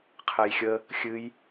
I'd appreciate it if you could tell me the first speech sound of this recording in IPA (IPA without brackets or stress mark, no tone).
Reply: qʰ